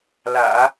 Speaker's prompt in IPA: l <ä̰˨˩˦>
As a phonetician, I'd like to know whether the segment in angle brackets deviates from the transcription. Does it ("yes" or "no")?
no